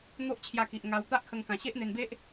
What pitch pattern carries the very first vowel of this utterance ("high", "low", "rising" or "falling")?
high